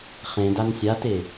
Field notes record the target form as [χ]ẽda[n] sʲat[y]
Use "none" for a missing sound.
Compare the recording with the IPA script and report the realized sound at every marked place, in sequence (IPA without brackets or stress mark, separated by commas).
χ, n, e